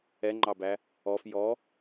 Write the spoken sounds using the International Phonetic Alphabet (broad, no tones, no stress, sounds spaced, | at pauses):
ɛ ŋ͡ǃ ɑ b æ | ɔ f j ɔ